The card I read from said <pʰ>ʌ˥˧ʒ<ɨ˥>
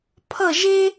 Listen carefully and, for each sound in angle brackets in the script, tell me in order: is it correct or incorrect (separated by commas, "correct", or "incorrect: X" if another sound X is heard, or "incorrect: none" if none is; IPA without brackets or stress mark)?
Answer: correct, incorrect: e˥